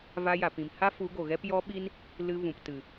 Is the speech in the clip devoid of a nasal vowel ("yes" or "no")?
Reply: no